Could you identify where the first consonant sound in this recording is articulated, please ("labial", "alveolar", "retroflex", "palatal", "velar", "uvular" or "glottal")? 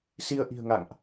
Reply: alveolar